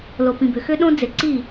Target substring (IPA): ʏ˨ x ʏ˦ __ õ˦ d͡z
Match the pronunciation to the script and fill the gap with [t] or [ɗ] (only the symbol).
ɗ